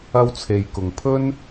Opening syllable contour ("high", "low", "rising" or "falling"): high